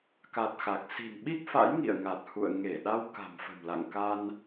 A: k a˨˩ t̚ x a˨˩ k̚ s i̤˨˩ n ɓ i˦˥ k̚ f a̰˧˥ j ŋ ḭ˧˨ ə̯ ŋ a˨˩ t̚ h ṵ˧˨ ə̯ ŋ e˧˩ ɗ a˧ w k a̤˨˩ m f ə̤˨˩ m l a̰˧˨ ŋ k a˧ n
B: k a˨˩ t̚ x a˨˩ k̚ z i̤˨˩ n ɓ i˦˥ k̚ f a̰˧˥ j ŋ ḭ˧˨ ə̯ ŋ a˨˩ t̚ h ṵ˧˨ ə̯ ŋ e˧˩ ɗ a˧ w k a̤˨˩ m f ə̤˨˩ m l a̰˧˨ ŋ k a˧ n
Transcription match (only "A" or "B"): A